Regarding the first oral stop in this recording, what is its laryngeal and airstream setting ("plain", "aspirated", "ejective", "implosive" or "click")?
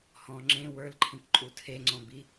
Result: click